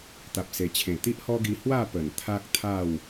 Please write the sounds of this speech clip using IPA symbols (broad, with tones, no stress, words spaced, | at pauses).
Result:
t̪a˨p̚se˨˩t͡ɕʰẽ˨˩ t̪i˦ʔhɔ˦ɡi˧ hwa˥˧pə˨˩n t̪ʰa˦k̚t̪ʰa˥˧w